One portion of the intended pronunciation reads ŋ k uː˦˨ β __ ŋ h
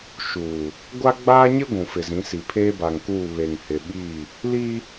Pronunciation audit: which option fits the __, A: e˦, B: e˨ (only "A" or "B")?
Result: B